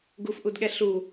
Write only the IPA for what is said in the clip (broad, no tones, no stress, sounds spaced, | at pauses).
ɡ u f ʔ u d ɠ ɛ ɬ u